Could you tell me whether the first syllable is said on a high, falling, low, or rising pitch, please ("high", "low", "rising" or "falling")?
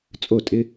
falling